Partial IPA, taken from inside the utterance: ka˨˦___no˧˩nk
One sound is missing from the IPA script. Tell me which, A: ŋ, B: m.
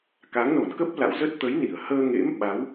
A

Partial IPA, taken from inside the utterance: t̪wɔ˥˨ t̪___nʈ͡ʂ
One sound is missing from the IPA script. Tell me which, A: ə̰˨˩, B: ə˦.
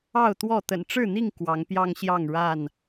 A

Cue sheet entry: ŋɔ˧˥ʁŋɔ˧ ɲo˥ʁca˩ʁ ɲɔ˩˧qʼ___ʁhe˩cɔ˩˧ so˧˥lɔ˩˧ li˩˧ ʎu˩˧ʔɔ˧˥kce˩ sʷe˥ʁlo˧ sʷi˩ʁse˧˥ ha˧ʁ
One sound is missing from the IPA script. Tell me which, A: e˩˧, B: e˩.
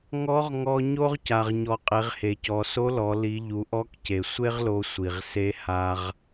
A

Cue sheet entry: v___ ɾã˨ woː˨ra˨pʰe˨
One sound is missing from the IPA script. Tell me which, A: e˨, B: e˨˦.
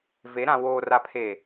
B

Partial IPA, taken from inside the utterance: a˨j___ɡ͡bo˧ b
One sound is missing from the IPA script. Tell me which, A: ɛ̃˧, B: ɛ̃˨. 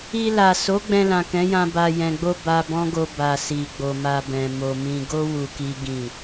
B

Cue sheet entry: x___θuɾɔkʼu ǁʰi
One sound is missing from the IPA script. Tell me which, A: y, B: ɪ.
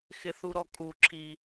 B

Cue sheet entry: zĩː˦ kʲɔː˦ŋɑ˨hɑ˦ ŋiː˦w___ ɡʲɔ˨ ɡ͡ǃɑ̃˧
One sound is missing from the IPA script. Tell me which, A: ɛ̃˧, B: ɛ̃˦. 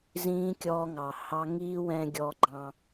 A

